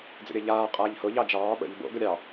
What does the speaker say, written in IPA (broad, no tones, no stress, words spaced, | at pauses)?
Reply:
d͡zə̰ɾʲɜʎaː qʼaːʎhʊ ʎɑd͡ʒɑː ɓə̰ʎ bo̰ ɡʊɾʲɑ